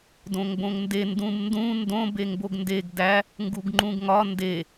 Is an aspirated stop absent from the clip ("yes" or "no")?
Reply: yes